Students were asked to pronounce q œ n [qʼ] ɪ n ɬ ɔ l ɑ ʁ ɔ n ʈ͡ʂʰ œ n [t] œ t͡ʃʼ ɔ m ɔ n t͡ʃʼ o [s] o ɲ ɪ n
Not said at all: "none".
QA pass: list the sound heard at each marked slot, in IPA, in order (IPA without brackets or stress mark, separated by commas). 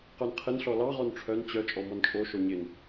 qʰ, t͡ɕ, ʃ